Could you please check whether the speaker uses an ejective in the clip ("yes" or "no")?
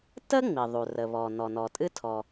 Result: yes